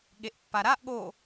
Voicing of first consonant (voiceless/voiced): voiced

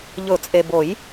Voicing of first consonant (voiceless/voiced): voiced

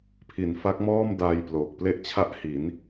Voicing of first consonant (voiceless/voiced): voiceless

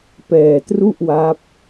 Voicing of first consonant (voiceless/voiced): voiceless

